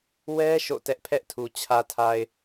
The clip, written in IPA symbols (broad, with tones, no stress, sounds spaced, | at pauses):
w ɛ˦ ʃ o̰˦˨ t ɛ˦ ʔ pʰ ɛ˦ ʔ tʰ u˨ t͡ɕʰ ä˨ tʰ a˨ ɪ̯